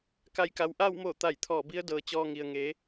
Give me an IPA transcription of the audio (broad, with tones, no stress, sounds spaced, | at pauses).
k a˧˩ j k a˩ w ʔ aː˥˨ w m oː˧˩ t̪ a˧˩ j t̪ʰ ɔː˧˩ b i˧˥ ə̯ d ɤː˩ t͡ɕ ɔː˧ ŋ i˩ ə̯ ŋ e˩˧